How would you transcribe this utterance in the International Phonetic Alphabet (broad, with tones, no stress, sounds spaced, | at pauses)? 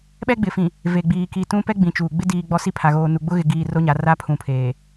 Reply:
ɓ ɛ˦ ɡ͡b ɪ˨ f ĩ˨ | v e˨ ɡ͡b iː˨ k i˨ t ũ˦ p ɛ˦ ɡ͡b ĩ˨ t͡ʃ uː˨ ɡ͡b ɪ˦ d iː˨ ɡ͡b ɔ˦ s i˦ pʰ a˨ ɣ oː˨ n u˨ ɡ͡b ʊ˦ ɣ ɪ˨ ɡ iː˨ r o˦ ɲ a˨˦ r a˦ pʰ ũ˨ pʰ eː˨